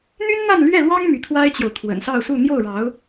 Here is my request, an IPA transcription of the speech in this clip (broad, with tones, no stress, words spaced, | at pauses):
n̪y˥nn̪a˥˧nlɥɛ˥˩lwɑ˥ŋ my˧˥t̪ʰwa˥ɪ̯t͡ɕjo˨ʊ̯ t̪ʰwə̰˨˩nsɑ˥˧ʊ̯su˥˧ n̪jo˥˩ʊ̯ɻɑ˧˥ʊ̯